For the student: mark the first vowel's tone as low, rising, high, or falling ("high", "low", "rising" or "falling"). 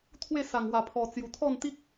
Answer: falling